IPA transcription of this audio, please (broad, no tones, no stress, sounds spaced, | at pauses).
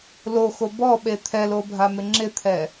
l o x o b ɔ ɓ e t̪ʰ ɛ l o bʱ a m ɪ ŋ͡ǁ ɪ t̪ʰ ɛ